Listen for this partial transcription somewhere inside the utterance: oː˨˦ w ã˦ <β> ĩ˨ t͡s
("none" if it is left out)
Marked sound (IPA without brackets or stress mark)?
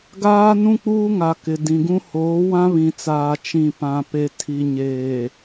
β